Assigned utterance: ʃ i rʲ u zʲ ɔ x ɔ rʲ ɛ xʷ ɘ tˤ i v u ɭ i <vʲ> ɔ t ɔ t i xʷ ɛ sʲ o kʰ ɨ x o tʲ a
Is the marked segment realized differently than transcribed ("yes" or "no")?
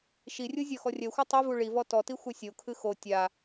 yes